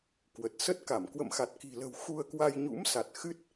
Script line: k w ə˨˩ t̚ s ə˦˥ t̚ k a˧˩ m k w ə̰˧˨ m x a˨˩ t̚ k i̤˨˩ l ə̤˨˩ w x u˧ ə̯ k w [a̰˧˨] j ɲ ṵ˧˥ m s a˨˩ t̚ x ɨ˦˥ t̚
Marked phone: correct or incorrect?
incorrect